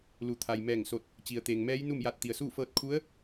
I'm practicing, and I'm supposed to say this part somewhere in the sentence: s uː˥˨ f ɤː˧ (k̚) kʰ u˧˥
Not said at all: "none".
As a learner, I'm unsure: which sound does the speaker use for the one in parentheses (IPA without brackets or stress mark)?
t̚